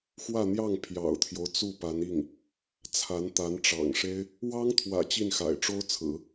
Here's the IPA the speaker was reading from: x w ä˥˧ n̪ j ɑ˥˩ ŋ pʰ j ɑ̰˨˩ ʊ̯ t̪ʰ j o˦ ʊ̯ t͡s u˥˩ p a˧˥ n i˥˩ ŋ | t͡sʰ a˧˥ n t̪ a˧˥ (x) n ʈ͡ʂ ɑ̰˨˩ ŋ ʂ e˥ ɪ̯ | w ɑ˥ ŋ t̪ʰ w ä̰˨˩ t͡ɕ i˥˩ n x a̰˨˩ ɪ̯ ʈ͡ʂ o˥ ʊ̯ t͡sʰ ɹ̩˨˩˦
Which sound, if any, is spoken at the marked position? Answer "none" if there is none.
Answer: none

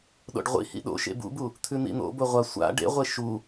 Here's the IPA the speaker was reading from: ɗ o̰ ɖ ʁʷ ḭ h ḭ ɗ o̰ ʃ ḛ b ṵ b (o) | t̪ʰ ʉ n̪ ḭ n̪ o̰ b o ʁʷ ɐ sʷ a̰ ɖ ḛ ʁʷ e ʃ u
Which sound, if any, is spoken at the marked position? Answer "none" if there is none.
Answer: u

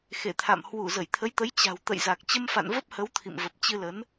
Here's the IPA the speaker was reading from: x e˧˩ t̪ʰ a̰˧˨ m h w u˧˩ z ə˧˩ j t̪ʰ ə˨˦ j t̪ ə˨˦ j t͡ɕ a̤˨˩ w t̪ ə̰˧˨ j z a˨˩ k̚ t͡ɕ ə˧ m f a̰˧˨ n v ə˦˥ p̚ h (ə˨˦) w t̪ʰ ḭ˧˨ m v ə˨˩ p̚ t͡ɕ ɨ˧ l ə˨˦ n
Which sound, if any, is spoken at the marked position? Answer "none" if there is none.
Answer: ə˨˦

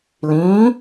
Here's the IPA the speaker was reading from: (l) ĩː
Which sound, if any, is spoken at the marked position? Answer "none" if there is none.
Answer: l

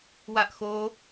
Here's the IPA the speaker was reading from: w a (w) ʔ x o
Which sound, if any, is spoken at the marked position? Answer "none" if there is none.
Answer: none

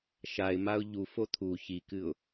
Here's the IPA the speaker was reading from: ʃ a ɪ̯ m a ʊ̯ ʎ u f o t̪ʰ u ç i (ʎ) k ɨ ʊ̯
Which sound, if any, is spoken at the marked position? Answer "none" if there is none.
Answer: none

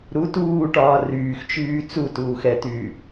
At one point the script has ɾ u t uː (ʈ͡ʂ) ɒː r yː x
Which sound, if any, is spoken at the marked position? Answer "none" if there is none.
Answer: ʈ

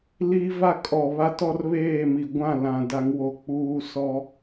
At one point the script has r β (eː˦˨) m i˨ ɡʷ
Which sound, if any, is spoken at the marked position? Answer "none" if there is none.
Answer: eː˦˨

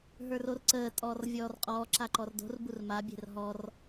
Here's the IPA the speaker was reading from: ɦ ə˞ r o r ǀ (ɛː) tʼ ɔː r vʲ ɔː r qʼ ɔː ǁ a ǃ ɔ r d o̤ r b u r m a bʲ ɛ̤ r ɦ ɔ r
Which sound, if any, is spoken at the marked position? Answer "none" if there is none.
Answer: əː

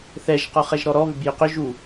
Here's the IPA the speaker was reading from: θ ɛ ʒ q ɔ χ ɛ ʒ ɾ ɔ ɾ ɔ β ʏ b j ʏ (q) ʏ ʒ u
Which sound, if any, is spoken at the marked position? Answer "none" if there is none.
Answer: q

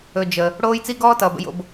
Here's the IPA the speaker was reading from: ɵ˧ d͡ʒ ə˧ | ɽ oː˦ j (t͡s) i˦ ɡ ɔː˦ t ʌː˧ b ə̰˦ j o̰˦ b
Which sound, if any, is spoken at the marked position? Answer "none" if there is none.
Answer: t͡s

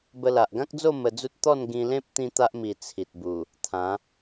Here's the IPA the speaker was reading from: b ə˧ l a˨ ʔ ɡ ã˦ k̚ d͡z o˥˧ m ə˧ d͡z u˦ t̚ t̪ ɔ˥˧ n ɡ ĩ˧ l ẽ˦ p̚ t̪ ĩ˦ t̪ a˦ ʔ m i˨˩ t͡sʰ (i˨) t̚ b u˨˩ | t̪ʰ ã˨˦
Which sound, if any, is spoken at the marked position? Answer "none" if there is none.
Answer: i˨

